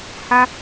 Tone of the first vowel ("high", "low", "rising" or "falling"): high